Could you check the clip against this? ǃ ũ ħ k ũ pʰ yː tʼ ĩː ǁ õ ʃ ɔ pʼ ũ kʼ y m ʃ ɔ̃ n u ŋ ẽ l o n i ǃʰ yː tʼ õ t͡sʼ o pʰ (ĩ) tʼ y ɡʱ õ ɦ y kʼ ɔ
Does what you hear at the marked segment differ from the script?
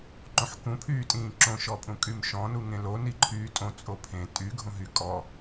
yes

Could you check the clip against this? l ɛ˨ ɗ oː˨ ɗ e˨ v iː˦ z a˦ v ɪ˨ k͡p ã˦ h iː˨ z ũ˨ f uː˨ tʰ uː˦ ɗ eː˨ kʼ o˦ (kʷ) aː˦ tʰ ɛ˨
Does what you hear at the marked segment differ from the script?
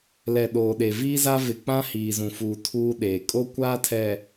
no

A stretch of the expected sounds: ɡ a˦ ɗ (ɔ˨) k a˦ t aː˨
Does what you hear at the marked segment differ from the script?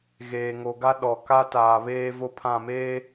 no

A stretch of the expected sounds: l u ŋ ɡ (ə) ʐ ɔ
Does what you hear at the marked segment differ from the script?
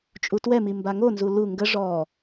no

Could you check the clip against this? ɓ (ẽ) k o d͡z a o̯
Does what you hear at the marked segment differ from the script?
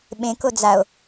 no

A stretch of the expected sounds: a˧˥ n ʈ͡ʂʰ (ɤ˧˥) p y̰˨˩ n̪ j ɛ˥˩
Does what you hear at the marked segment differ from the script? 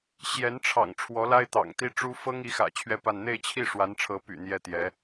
no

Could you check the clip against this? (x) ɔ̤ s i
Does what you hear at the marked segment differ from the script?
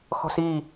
no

